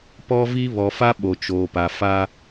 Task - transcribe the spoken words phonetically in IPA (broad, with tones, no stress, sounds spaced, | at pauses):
p ɔ˦ v i˦ β ɔ˨ f a˦ ɓ o˨ t͡ʃ oː˨ p a˨ f a˦